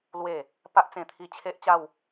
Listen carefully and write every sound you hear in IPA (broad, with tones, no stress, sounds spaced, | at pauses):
l w e˨˩ | p a˦ ʔ t͡s ẽ˧ t̪ʰ i˧ t͡ɕʰ e˦ ʔ t͡ɕ a˥˧ w